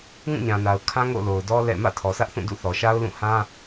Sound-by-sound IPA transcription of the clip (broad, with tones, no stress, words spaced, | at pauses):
ŋũ˦˨ɲã˨na˨ʊ̯ kʰã˦ŋo̰˦˨lo˨ʊ̯dɔ˦ lɛ̰˦˨ mä̰˦˨tʰɔ˨sä˦ʔθũ˦˨ dṵ˦˨ θɔ˨ʃa˦ʊ̯lũ˦˨ hã˦